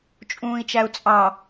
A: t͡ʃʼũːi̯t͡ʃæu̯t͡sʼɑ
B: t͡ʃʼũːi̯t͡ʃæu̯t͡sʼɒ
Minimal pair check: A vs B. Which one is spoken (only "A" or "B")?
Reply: A